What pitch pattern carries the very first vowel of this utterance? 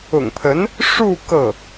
low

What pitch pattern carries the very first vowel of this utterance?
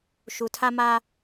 low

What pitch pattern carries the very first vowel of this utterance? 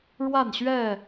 falling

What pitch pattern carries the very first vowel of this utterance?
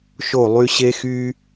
falling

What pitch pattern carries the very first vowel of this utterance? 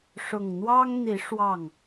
low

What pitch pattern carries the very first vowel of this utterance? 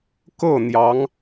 falling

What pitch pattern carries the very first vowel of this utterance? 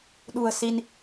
low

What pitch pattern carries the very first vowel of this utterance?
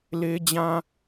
high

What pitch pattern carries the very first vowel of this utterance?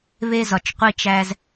high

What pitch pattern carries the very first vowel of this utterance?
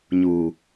low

